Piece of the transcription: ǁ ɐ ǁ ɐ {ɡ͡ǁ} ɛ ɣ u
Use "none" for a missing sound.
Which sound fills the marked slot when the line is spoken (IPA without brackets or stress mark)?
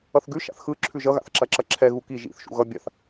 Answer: ǁʰ